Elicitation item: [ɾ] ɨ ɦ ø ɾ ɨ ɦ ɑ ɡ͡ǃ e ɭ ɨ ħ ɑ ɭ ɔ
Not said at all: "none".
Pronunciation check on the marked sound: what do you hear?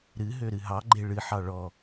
ɾ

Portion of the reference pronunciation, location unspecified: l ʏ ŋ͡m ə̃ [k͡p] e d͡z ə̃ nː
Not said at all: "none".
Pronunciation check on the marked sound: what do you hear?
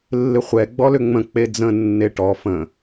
k͡p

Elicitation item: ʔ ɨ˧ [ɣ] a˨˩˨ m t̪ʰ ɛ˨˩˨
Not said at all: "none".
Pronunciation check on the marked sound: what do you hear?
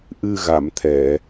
ɣ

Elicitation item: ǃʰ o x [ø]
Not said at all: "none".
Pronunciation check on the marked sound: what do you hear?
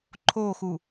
u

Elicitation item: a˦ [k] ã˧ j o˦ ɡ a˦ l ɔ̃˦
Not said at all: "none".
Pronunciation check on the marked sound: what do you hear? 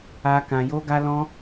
k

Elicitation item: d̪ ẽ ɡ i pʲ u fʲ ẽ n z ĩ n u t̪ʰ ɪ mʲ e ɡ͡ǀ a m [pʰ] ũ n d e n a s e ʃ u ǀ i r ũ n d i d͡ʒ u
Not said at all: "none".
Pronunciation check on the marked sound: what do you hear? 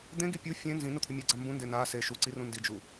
b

